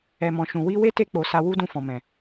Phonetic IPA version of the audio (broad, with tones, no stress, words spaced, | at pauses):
ɛ˨mɔ̃˨ ʃũ˨wi˧ we˦te˧k͡po˨ sa˧wu˦dũ˧ fɔ̃˨mɛ̃˨